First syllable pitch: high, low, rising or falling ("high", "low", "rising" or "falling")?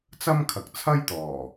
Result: high